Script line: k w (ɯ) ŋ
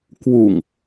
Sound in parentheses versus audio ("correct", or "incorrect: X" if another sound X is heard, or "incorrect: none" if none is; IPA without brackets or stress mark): incorrect: u